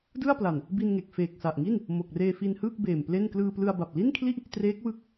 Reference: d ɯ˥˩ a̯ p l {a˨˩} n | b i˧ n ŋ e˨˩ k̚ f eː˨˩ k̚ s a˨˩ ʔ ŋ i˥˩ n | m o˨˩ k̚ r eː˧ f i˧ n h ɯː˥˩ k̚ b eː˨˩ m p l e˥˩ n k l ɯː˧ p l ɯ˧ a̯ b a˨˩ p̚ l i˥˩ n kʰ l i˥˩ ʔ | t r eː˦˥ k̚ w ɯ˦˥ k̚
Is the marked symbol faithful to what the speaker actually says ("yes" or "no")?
yes